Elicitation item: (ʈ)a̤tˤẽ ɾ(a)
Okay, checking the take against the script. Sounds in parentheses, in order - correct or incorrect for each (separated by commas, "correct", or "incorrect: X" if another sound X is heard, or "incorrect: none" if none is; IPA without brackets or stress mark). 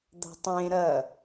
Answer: incorrect: d̪, incorrect: ɐ